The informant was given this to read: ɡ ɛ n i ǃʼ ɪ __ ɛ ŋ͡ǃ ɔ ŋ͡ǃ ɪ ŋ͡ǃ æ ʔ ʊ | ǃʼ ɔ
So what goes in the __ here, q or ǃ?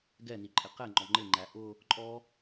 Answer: q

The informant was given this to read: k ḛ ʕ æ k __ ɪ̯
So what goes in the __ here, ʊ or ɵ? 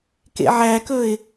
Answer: ɵ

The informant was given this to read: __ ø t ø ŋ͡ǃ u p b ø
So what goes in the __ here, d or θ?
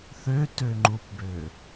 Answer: θ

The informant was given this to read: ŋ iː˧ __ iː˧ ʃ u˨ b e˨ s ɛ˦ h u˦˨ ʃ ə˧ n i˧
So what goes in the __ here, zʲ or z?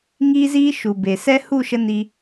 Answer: z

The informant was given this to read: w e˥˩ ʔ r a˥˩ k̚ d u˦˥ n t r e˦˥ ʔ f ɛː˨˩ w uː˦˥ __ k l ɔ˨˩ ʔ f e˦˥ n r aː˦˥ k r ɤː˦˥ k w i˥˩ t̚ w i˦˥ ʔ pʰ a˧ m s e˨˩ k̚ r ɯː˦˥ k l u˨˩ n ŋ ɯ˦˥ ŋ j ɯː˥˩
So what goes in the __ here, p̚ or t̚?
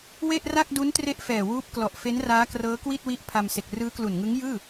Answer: p̚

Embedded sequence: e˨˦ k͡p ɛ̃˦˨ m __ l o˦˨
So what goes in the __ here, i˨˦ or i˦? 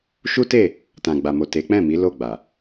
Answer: i˨˦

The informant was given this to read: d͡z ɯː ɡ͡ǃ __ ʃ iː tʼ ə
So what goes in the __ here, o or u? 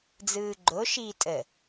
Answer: o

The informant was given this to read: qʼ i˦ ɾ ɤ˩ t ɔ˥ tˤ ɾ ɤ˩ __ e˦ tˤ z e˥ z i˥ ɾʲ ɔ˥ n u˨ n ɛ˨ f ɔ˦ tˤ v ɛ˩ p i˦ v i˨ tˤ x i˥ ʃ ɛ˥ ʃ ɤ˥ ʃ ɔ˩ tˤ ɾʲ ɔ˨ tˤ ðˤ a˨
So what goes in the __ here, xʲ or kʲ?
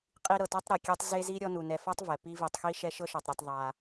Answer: kʲ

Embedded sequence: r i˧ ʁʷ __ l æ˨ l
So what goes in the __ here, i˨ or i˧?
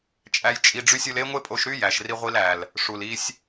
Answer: i˧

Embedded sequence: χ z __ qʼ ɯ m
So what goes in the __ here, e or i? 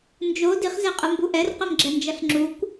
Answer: e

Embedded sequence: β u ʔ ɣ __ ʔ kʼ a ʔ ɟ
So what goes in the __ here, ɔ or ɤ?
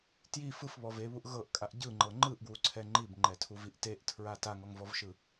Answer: ɤ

